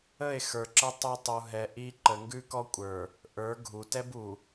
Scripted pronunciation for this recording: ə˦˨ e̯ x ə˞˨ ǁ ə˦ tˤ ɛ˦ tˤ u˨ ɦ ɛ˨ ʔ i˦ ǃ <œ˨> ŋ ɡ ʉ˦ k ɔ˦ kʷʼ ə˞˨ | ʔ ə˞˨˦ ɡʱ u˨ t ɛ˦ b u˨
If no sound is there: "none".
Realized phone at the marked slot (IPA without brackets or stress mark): ə˨